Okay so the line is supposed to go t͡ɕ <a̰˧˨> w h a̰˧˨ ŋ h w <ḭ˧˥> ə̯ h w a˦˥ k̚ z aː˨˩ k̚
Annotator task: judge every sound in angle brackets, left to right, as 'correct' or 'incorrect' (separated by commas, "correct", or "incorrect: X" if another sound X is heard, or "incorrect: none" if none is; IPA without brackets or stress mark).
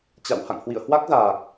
correct, incorrect: ḭ˧˨